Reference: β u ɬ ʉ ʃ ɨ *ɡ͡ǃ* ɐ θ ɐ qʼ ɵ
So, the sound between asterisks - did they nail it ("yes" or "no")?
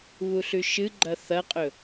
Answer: yes